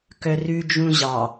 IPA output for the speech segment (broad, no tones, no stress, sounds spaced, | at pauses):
k œ r ʉ d͡ʒ ũ ʑ ɑ